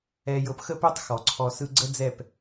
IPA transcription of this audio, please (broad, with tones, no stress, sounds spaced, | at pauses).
ɛ˧ j ɤ˧ p x ə˦ p ø˦ tˤ x ɔ˨ ǀʰ ɔ˧ s ɯ˦ ɡ͡ǀ ə˦ d͡z ɛ˦˨ p